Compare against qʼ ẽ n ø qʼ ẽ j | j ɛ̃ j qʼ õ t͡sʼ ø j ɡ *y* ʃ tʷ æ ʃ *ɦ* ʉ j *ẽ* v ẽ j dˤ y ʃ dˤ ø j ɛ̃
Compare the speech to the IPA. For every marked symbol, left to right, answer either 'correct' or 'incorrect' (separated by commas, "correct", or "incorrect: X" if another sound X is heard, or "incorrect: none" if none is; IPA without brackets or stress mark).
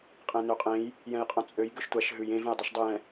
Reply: incorrect: ø, correct, correct